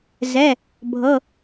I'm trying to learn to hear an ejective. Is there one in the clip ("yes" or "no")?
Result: no